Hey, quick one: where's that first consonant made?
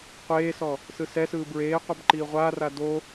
uvula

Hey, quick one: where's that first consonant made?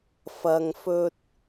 lips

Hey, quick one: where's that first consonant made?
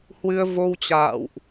throat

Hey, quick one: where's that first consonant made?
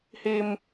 throat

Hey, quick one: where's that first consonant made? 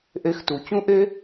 throat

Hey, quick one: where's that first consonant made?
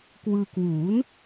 velum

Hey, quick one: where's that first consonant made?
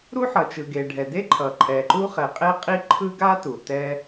tongue tip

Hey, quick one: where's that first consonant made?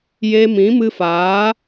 palate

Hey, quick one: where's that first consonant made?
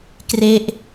velum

